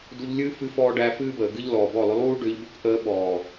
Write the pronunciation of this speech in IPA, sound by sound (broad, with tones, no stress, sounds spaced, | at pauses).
d u˧ ʎ lʲ ɨː˦ f ɨ˦ f ɔː˦ ɖ æ˧ f ɨː˦ b əː˨ ɡ ɨ˦ ʎ l ɔː˨ b ɔ˦˨ lˠ ʏ˦ lˠ uː˦ ɖ ʏː˧ ʎ b ʏ˦ k ʔ əː˧ ɓ ɔː˨